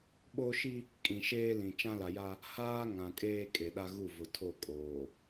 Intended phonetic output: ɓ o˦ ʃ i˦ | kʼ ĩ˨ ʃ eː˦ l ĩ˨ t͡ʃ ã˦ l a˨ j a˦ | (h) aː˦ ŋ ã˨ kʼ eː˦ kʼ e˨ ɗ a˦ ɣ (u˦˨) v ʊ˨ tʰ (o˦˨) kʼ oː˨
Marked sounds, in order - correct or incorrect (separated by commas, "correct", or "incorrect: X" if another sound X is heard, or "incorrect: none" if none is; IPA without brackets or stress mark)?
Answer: correct, correct, correct